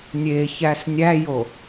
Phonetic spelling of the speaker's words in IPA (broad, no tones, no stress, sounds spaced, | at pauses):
nʲ e ç æ s nʲ æ j o